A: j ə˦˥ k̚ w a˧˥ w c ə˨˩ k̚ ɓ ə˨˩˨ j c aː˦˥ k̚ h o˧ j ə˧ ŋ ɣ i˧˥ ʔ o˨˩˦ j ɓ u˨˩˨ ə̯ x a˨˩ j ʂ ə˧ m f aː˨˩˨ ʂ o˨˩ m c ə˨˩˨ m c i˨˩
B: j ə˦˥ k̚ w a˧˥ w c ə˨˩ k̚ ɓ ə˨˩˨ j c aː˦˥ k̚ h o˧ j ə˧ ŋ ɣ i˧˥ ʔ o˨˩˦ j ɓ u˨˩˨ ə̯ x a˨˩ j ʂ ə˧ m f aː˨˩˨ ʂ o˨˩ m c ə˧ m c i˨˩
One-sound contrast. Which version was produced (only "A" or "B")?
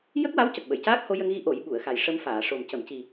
A